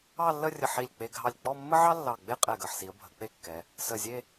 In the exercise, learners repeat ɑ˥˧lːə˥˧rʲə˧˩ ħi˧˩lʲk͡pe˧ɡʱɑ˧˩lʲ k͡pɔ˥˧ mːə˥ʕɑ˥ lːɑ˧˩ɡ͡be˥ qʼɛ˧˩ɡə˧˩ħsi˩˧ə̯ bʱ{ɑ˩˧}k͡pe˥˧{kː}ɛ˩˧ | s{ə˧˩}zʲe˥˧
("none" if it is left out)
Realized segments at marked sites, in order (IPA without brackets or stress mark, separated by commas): ə˩˧, kː, ə˧˩